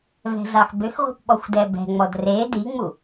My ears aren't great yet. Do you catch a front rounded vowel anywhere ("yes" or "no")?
yes